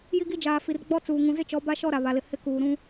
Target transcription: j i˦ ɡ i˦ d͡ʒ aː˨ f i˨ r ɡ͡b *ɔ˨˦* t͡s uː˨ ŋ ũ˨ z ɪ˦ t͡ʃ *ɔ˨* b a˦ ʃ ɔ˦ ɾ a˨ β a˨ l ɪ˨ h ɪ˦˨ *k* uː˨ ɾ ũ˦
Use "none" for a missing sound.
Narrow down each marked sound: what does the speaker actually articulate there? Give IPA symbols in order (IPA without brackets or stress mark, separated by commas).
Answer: ɔ˦, ɔ˨˦, k